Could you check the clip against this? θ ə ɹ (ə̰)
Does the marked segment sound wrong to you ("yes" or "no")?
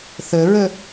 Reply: yes